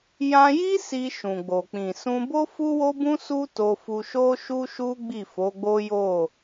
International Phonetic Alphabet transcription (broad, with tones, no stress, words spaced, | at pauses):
jã˧ji˦ si˧ʃũ˨ɡ͡bo˨ k͡pĩ˨sũ˧bo˦ fu˦wo˦bũ˦ su˦to˧fu˧ ʃo˦ʃu˦ʃu˦ ɡ͡bi˦˨fo˨˦ɡ͡bo˦jo˦˨